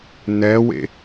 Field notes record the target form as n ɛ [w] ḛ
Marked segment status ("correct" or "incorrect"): correct